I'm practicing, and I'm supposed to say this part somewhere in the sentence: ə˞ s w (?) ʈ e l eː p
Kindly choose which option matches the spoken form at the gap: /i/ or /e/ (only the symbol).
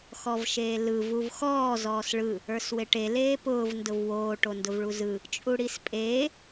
e